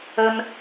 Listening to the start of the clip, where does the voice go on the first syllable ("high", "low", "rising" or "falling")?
high